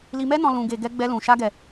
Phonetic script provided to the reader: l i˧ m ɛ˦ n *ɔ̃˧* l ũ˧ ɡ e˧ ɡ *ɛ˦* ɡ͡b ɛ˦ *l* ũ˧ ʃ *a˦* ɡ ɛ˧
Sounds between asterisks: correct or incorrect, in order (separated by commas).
correct, correct, correct, correct